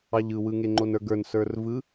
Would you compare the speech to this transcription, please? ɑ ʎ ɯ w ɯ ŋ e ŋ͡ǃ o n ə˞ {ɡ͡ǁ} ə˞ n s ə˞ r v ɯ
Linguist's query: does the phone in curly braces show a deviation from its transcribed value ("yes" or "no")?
yes